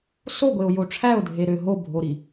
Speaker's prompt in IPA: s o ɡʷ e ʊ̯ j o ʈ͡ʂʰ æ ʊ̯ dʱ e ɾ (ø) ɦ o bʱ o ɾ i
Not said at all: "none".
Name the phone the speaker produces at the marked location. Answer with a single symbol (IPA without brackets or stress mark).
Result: ø